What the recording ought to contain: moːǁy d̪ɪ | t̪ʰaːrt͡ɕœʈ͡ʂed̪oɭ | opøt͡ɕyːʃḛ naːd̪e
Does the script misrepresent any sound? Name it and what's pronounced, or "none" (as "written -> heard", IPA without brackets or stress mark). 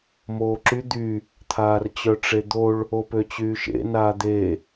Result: ɪ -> y